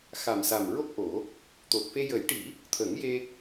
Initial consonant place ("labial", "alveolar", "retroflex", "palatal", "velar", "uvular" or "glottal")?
velar